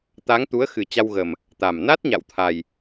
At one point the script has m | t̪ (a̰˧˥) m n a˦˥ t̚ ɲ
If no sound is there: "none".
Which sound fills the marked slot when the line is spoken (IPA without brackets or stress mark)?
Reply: a˨˩